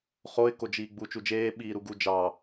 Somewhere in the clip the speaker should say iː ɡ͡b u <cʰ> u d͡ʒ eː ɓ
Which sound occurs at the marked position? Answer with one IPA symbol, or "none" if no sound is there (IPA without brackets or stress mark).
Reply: t͡ʃ